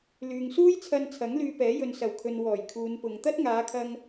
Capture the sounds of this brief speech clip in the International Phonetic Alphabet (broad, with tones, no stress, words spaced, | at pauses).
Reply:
lyː˨ŋsuː˥jt͡sʰɐ˧nt͡sʰɐ˨˥ŋ lyː˧pɛː˨˥ jɵ˨nsɐ˨˩wkʰɵ˨n wɔː˨˩jkʰuː˨˧npʊ˨ŋ t̪ɐ˥t̚ŋaː˨˧kʰɐ˧ŋ